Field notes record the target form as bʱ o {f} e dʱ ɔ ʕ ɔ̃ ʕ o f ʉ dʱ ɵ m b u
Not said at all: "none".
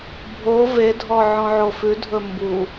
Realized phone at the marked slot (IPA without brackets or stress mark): v